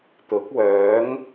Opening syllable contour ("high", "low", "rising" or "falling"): rising